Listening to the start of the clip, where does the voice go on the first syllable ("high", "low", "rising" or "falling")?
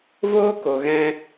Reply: high